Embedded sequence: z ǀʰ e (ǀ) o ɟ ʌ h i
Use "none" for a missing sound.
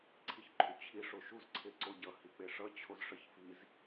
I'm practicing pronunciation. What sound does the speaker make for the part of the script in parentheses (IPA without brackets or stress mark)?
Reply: ǀ